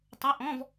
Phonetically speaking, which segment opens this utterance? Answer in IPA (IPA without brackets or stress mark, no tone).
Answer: tˤ